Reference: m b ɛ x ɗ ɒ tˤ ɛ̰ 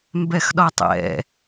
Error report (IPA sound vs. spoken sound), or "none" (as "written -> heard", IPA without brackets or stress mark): none